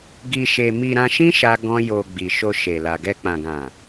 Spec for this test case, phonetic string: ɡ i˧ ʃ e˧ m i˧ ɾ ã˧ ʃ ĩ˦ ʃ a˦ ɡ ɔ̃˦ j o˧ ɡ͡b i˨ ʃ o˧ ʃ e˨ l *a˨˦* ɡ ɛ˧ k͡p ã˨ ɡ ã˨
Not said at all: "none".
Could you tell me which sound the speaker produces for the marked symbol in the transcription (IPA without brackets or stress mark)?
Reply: a˨